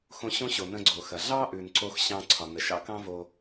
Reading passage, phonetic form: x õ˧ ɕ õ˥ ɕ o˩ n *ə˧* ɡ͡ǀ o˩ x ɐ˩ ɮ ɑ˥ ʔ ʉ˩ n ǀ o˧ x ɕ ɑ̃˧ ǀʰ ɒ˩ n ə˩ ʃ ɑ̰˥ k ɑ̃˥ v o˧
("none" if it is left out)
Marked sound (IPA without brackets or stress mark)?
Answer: ə̃˧